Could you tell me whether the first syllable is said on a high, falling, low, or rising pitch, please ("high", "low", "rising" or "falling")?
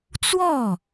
falling